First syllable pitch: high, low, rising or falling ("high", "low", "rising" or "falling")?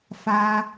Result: high